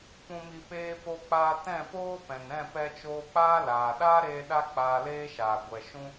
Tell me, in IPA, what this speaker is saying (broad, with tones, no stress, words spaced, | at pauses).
pũ˨mi˨ peː˧po˧k͡paː˧ tɛ̃˦˨poː˦pɛ̃˨nɾɛ̃˦˨ pɛ˧t͡ʃoː˧ k͡paː˦laː˨ ɗaː˦ɾeː˧ ɗa˦k͡paː˧leː˦ʃaː˨ ɡʷɛ˨ ʃũ˦